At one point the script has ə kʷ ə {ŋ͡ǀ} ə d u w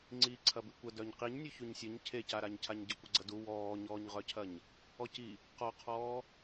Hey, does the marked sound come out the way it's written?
no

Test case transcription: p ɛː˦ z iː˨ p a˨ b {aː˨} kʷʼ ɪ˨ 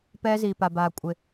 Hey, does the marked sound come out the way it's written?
yes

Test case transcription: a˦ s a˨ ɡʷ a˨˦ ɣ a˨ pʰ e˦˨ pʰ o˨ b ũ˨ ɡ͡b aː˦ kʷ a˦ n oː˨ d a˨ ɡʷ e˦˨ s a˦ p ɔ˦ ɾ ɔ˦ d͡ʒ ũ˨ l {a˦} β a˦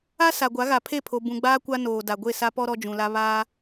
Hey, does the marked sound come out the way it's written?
yes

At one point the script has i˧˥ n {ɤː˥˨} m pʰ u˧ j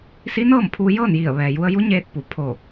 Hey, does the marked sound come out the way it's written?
yes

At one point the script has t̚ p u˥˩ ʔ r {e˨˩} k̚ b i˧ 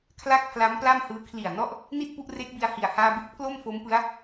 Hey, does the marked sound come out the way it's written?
no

